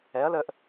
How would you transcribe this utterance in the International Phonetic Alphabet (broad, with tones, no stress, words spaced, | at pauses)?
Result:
ɛ˩˥ɐ̯lə˧ʔ